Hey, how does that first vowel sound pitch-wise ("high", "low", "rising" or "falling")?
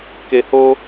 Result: low